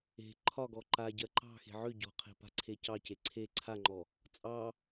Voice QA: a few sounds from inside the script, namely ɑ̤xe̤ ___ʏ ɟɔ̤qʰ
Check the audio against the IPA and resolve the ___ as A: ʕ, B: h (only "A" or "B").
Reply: A